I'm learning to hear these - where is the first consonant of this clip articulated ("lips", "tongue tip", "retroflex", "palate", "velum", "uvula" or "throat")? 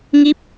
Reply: velum